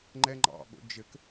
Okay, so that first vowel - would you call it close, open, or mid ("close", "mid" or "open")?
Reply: mid